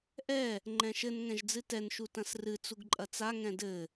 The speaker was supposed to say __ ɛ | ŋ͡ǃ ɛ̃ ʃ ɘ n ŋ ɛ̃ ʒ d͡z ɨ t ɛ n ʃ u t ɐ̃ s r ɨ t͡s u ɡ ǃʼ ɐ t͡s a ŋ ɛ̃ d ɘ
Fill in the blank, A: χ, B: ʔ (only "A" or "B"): B